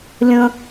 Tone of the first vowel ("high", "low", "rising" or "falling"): high